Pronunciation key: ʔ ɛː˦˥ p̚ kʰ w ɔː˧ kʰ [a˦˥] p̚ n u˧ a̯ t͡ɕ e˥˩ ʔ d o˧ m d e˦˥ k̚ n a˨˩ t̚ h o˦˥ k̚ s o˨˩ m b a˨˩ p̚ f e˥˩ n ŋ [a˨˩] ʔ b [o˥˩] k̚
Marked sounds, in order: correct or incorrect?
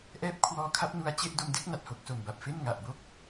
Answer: correct, correct, correct

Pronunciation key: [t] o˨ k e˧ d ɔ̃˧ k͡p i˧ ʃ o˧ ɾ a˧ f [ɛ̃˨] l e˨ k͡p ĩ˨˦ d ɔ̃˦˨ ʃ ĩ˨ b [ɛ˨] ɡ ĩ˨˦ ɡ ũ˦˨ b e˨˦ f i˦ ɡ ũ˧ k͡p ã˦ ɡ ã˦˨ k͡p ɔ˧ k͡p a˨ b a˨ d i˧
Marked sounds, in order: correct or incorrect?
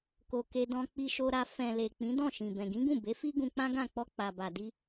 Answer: incorrect: k, correct, incorrect: ɛ̃˨

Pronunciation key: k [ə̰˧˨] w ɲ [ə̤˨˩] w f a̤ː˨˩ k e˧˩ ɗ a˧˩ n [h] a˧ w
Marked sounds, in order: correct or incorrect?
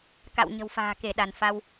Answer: incorrect: a̰˧˨, correct, incorrect: f

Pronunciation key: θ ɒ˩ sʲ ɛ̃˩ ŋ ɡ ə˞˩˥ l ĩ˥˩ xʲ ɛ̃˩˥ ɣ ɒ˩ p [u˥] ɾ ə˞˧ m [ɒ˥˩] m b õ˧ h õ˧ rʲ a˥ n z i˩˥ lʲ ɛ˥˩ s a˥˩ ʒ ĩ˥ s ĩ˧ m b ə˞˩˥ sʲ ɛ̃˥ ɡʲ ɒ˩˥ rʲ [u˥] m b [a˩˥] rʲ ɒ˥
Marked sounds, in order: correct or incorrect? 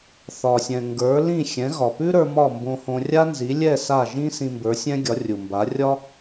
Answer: incorrect: ʉ˥, correct, incorrect: u˩, correct

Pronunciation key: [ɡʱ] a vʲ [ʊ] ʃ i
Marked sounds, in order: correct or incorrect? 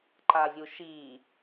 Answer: incorrect: ǃ, incorrect: u

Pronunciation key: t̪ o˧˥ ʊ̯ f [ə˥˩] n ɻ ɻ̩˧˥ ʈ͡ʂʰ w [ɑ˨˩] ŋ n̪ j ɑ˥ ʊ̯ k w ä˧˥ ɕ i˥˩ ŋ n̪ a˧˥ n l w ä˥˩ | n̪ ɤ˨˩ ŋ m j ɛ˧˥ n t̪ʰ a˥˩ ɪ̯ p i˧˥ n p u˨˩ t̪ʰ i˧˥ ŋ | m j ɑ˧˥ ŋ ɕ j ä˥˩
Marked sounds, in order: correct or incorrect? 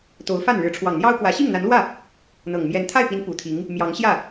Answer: incorrect: a˥˩, correct

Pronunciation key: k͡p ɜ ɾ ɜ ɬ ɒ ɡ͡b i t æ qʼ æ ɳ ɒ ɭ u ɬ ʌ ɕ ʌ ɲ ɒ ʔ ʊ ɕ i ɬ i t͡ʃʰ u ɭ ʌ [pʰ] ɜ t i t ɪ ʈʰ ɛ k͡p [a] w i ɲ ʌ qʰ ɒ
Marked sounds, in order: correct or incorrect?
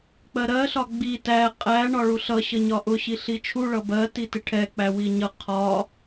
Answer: incorrect: b, incorrect: æ

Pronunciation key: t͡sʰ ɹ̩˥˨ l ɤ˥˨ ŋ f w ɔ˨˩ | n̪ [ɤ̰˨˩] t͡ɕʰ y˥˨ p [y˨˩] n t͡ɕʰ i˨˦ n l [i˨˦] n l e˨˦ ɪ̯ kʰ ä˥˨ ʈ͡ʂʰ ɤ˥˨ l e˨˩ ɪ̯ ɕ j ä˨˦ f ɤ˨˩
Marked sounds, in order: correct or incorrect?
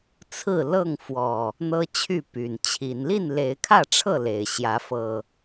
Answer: incorrect: ɤ˦, correct, incorrect: i˥˨

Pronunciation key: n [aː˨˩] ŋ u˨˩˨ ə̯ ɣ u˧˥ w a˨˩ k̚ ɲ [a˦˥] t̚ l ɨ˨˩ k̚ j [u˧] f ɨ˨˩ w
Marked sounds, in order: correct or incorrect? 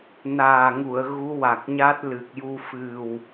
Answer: correct, correct, correct

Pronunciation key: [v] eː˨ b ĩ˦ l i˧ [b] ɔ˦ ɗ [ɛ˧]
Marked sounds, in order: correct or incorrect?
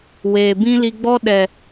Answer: incorrect: w, incorrect: ɡ͡b, incorrect: ɛ˨

